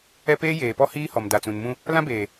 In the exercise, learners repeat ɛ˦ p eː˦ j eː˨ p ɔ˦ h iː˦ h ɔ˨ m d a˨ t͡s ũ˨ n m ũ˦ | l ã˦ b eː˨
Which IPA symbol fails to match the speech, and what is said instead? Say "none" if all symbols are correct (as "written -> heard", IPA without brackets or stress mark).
none